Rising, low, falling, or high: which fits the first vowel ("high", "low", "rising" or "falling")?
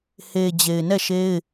low